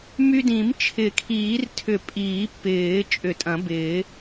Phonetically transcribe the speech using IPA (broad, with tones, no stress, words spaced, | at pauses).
my˧dĩ˨˩˦m t͡ʃʰɪ˨˩˦kʰiː˨˩˦rtʰʏ˨˩˦ pʼiː˨˩˦pːɪː˨˩˦ t͡ʃʼʏ˨˩˦tʼɐ̃˨˩˦bɪː˨˩˦